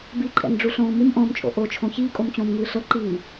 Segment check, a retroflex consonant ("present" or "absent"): present